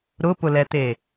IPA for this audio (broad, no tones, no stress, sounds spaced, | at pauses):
ɾ ʊ p ʊ l ɛ t̪ e